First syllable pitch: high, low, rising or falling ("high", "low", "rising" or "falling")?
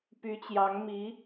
rising